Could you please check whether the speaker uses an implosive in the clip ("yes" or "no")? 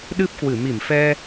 yes